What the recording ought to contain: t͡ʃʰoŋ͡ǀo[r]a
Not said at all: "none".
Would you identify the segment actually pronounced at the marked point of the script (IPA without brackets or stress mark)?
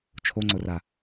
r